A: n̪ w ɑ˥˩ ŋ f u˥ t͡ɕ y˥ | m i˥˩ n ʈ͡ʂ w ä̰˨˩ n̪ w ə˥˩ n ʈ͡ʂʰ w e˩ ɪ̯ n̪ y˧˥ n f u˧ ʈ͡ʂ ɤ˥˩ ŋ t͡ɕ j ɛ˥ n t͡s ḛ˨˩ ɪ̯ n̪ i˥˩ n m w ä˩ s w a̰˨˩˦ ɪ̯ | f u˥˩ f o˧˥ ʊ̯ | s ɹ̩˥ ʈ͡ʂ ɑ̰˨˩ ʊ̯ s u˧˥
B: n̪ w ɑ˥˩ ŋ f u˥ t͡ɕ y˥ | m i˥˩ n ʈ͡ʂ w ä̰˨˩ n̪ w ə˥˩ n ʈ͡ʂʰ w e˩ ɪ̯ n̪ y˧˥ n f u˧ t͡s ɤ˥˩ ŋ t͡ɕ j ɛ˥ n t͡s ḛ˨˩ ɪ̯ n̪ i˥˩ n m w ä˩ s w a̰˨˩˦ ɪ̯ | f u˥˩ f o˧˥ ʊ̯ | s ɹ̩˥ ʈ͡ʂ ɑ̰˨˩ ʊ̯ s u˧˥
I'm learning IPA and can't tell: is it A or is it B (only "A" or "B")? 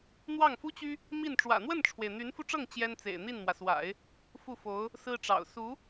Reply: A